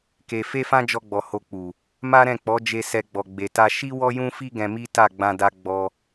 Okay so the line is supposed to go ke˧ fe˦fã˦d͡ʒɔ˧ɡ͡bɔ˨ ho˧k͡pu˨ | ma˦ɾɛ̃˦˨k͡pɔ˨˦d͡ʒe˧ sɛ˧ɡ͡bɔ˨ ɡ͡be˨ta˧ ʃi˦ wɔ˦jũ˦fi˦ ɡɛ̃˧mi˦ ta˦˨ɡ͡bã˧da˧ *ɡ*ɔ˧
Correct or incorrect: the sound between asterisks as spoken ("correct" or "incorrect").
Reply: incorrect